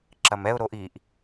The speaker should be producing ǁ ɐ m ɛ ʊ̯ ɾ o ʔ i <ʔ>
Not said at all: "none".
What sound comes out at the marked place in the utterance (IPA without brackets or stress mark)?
ʔ